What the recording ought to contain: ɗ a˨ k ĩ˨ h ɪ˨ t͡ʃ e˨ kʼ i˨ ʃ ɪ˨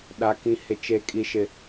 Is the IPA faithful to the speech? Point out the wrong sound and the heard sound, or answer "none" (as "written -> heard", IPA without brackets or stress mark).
none